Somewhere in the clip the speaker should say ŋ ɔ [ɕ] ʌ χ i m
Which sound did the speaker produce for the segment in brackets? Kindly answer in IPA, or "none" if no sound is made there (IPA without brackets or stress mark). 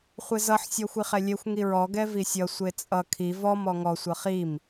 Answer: sʷ